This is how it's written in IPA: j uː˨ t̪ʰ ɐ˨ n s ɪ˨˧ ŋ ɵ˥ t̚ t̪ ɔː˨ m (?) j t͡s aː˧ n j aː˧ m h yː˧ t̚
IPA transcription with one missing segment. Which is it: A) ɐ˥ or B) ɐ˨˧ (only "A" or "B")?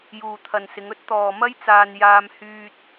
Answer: A